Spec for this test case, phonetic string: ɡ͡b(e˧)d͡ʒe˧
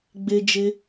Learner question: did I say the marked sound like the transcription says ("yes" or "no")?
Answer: yes